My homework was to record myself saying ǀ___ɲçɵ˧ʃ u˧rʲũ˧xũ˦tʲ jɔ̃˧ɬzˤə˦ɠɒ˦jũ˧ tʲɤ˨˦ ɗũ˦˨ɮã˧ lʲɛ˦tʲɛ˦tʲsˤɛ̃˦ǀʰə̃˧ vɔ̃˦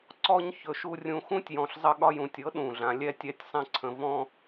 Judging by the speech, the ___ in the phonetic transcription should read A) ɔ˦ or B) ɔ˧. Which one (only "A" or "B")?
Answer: A